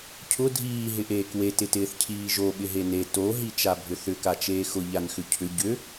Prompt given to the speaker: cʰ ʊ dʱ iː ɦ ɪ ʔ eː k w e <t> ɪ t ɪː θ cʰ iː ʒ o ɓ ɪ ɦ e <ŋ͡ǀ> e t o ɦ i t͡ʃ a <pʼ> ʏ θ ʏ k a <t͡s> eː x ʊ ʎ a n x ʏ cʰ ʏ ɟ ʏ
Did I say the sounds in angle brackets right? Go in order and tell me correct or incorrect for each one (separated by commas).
correct, incorrect, incorrect, incorrect